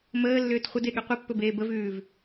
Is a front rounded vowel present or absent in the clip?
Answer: present